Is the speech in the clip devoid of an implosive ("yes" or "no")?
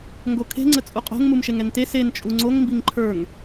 yes